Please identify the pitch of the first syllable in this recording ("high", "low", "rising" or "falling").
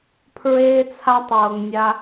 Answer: high